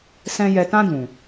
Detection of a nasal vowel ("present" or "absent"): present